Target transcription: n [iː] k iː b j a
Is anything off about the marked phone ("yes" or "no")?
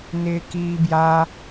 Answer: yes